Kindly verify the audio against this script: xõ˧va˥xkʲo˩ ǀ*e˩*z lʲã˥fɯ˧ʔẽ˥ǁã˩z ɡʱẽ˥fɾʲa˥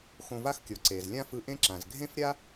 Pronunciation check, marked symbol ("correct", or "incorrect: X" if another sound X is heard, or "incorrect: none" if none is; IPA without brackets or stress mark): correct